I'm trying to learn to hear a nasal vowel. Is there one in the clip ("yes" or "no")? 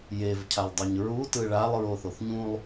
yes